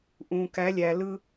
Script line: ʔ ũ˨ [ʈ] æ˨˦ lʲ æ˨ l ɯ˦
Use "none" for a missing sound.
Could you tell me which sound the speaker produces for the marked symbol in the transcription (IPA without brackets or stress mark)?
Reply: k